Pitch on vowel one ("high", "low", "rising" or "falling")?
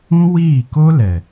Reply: high